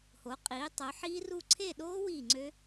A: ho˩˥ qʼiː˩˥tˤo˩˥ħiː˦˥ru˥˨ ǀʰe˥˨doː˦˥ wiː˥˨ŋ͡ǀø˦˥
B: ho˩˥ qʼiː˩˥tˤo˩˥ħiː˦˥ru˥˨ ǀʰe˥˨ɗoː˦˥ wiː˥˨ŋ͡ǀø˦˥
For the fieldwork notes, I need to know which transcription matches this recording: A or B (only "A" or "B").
B